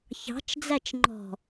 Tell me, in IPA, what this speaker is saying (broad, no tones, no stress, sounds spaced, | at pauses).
ç ɑ̤ t͡ʃ d͡z æ t͡ʃ ŋ͡ǃ ɔ̤